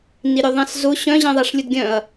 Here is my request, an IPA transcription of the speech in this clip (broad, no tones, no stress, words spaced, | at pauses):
niɾʲʊðˤɛ̃szʊ ɕœ̃ʑɛ̃ ðˤaʂlʲʊdɡʲœ̃ɐ̯